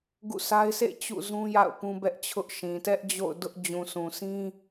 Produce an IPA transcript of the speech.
ɡ ṵ˦˨ sʰ a˦ ɪ̯ s ḛ˦˨ t͡ɕ ṵ˦˨ z ũ˦ j a̰˦˨ ʊ̯ p ũ˦ b ɛ˦ ʔ t͡ɕʰ ʊ˦ ʔ ʃ ĩ˨ t ɛ˦ ʔ d͡ʑ o̰˦˨ ʊ̯ d ʊ˦ ʔ d͡ʑ ũ˨ sʰ ũ˨ sʰ ĩ˦

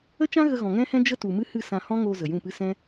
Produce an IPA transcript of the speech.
ə˦ t͡ʃ ã˦ ɣ ə˧ ɣ ɔ̃˨ ŋ ɛ̃˦ h ɛ̃˦ d͡ʒ ə˦ t u˨ m ɨ˦ h ɨ˦˨ s ã˧ h ɔ̃˦ ŋ oː˧ z ə˨ j ũ˦˨ p ɨ˦ s ɛ̃˦

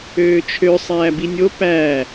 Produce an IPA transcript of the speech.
øː t͡ʃʰ ø sˤ æː b i nʲ o p æː

